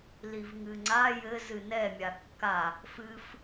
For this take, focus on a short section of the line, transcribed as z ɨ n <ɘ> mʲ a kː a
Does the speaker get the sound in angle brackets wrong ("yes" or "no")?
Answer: yes